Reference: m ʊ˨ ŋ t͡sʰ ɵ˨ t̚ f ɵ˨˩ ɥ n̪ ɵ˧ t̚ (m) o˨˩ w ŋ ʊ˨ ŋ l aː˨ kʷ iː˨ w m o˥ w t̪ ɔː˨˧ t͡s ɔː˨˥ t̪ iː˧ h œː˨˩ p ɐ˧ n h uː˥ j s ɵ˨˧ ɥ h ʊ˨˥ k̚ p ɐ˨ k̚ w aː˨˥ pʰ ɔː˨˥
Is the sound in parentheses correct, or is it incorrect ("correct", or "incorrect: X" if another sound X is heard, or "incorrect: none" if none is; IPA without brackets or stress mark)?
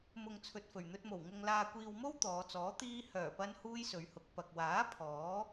correct